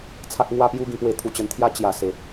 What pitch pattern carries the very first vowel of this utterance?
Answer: high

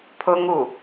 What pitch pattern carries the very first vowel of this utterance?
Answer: high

